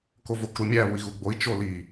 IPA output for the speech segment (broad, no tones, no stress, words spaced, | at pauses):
kovokɾumʲæ βui̯ɣuɡ͡boi̯ t͡ʃoli